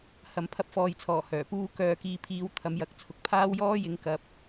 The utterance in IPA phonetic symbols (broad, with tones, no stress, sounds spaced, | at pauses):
h ɐ˨˧ m pʰ ɐ˧ p̚ f ɔː˨˧ j t͡sʰ ɔː˨˩ h œː˨˩ p uː˥ k œː˧ k iː˧ pʰ iː˧ w t̪ʰ ɐ˨˥ m j ɐ˨˥ k̚ t͡sʰ ʊ˨ k̚ pʰ aː˥ w j ɔː˥ j ɪ˨˧ ŋ k ɐ˨ p̚